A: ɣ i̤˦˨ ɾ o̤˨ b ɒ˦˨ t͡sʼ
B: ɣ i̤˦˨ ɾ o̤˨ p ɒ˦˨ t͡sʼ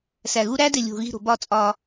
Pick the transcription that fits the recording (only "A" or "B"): A